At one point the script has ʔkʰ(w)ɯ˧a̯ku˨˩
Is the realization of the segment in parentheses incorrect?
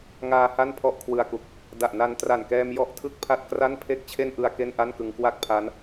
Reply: no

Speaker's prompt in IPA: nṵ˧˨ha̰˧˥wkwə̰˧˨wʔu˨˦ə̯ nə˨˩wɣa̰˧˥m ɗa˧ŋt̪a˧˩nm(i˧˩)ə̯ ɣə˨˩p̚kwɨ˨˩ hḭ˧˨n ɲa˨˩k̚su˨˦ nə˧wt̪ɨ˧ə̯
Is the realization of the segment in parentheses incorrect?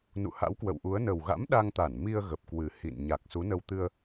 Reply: yes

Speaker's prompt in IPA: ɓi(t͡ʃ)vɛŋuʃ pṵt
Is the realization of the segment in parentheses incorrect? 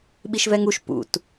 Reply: yes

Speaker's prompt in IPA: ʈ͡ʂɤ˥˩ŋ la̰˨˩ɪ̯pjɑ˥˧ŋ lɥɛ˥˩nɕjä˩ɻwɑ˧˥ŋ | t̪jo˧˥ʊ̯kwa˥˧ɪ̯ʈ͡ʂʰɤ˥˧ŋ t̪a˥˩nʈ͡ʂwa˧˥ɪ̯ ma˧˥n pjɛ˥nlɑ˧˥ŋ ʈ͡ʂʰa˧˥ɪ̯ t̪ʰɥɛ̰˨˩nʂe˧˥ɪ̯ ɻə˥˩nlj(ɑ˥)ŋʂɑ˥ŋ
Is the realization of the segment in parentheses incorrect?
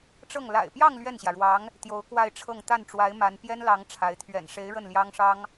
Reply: no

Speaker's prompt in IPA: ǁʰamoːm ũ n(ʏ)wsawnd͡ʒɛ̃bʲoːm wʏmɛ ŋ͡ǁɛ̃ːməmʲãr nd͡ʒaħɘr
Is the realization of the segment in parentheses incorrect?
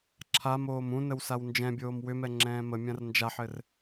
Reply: yes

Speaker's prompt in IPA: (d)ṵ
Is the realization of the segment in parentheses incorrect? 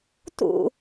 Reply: yes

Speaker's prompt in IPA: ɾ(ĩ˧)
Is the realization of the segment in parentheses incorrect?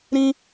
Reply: no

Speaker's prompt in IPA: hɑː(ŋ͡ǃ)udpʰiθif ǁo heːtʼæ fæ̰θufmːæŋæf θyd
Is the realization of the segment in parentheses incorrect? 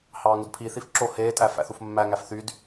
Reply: yes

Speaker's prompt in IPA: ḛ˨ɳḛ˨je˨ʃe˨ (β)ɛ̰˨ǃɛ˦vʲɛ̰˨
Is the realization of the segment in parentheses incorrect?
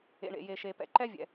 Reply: yes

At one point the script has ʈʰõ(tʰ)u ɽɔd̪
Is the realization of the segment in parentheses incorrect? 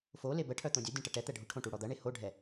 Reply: yes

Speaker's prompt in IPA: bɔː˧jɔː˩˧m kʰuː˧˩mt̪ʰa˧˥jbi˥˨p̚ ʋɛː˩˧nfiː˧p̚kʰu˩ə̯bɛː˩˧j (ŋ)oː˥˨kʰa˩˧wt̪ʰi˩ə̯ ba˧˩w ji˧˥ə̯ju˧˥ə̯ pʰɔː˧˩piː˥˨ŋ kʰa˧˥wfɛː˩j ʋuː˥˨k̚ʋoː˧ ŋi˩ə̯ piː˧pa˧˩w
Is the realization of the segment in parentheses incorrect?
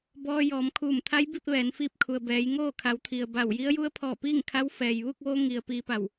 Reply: no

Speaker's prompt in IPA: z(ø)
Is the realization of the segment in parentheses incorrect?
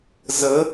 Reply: yes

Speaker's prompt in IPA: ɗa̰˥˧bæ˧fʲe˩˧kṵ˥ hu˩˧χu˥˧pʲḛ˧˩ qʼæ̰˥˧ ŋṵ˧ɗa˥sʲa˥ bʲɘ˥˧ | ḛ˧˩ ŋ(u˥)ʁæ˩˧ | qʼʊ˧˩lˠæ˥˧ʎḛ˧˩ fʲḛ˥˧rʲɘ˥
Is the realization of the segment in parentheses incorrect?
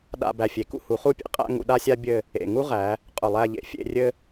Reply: no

